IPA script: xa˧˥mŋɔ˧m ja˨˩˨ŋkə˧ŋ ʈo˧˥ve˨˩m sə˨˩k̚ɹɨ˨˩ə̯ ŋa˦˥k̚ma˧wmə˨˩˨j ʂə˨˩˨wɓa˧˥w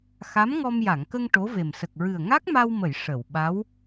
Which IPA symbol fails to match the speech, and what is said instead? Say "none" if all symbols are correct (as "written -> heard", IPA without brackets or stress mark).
none